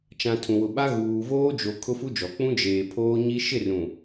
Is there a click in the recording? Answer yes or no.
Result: no